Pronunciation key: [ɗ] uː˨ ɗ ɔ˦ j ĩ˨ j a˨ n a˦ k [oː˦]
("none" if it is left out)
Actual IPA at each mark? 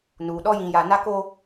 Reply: n, oː˦

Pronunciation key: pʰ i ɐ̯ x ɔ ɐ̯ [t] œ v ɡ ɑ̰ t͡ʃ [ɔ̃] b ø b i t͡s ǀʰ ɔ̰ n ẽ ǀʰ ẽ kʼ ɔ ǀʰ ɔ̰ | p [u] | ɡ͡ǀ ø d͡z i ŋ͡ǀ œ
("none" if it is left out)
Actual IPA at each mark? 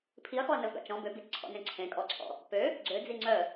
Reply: n, ɔ̃, ø

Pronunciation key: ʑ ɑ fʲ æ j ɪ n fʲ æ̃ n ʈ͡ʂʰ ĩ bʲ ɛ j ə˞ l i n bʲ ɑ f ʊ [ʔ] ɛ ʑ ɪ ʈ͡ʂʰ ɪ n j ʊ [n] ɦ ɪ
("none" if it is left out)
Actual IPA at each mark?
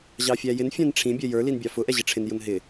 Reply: ʔ, n

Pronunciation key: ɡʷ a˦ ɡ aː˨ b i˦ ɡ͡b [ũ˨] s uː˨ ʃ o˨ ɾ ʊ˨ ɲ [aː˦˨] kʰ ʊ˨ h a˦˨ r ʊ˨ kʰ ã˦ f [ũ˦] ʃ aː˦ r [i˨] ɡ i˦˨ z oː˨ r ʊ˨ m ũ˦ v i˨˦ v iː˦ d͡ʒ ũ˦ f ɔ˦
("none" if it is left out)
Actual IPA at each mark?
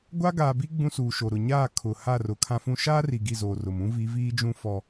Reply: ũ˦, aː˦˨, ũ˦, i˨

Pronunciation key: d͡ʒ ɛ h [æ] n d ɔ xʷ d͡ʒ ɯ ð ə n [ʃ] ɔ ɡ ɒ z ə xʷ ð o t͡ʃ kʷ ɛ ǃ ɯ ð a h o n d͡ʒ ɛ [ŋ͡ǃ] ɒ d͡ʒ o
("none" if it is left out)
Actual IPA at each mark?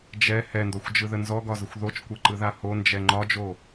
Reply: ɛ, z, ŋ͡ǃ

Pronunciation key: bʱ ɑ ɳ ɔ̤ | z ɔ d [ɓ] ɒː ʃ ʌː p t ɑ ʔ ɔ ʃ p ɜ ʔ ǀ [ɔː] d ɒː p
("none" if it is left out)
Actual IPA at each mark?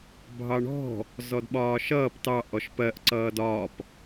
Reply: ɓ, ʌː

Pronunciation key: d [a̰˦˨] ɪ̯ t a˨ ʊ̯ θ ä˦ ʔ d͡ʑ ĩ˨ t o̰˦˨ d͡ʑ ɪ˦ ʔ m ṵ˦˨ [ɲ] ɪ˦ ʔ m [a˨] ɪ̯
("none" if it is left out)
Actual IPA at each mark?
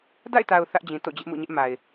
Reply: a̰˦˨, ɲ, a˨

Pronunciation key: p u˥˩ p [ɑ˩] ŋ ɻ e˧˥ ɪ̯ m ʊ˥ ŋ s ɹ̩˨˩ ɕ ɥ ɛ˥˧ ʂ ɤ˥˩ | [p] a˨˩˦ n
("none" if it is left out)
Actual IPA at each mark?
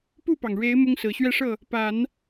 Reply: ɑ˩, p

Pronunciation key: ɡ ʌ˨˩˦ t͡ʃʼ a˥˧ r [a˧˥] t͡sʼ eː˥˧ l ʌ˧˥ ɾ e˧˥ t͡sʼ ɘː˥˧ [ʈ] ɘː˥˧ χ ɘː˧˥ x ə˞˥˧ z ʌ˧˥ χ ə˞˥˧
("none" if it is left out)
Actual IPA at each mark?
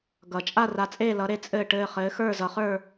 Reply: a˧˥, ʈ

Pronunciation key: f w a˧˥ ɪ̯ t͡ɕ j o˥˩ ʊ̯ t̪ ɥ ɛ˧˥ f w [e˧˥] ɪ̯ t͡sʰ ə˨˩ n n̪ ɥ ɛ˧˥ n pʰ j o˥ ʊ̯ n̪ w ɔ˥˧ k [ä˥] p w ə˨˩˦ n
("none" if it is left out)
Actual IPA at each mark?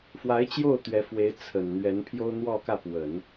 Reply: e˧˥, ä˥˩

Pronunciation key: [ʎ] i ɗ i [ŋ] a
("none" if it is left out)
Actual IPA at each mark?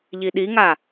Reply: ʎ, ŋ

